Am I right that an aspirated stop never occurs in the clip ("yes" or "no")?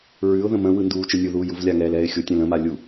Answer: yes